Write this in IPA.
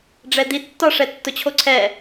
ɖ͡ʐ ɛ d̪ i tː ɒ ʂ ɛ tː ʊ t͡ɕʰ o ǀʰ ɛ

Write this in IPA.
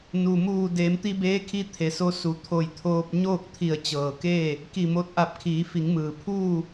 n u˩ m uː˧˩ d eː˩˧ m t̪ i˧ b eː˧˥ kʰ i˧ t̪ʰ e˩˧ s o˧˥ s u˩˧ t̪ʰ o˧˩ j t̪ʰ oː˧ p̚ ɲ oː˥˨ k̚ t̪ʰ i˧˩ ə̯ t͡ɕ ɤː˩ k eː˥˨ | k i˧˩ m o˧˥ t̚ ʔ a˧˩ p̚ kʰ iː˩˧ f i˩˧ ŋ m ɯː˩ pʰ uː˥˨

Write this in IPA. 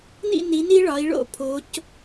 n ḭ˥˨ n i˩˧ n i˦ ɭ ɒ˩˧ i̯ ɭ o̰˥˨ pʰ o˩˧ c

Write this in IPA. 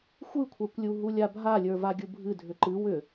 xʷ ɨ kʷʰ a kʷ lʲ u ɦ u lʲ a bʱ a lʲ ə˞ v a ɡʲ u bʱ ɨ dʱ ʏ ǃ ɨ w ʏ

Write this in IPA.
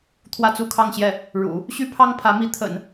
t̪ʰ w ä˥˧ t͡s u˥˧ kʰ ɑ˥˧ ŋ ɕ j ɛ˥˩ | ɻ ṵ˨˩˦ | ɕ y˥ pʰ ɑ˥ ŋ pʰ ä˧˥ m i˧˥ t̪ʰ ə̰˨˩˦ n

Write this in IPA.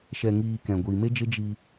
ʃ ɛ˨ ŋ iː˨ k ɛ̃˨ ɡʷ iː˨ m e˦ d͡ʒ e˦ d͡ʒ i˧

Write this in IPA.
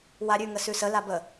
w a ɾʲ ʉ ŋ ə s ʉ s ə l a b ə

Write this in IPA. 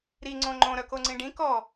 ɾ i ŋ͡ǀ õ ŋ͡ǃ õ ɾ œ k o ŋ͡ǀ ĩ ɖ ĩ k ɔ

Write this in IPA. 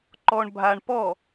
ǃ ɔ ɳ bʱ a ɳ p ɔ

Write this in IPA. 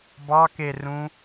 b ɑ k e r ũ

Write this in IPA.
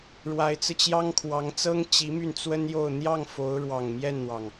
ɻ w a˧˥ ɪ̯ t͡s ɹ̩˧ t͡ɕ j ɑ˥ ŋ kʰ w ɑ˧˥ ŋ t͡s ɤ˥ ŋ t͡ɕ i˧˥ m y˥˩ n t͡s w ə˥ n j o˥˧ ʊ̯ n̪ j ɑ˥˩ ŋ f o˧˥ ʊ̯ ɻ w ɑ˨˩ ŋ m j ɛ˥˩ n n̪ w ɑ˩ ŋ

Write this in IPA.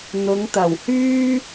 n̪ ʊ˨˧ ŋ t̪ ɐ˨˩ w h yː˥

